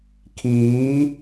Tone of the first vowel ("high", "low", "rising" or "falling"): rising